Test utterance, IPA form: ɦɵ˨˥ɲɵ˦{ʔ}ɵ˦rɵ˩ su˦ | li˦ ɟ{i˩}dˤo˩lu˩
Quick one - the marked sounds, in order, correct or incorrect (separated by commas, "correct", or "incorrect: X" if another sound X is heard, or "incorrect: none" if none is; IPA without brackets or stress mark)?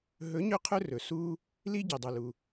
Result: incorrect: qʰ, correct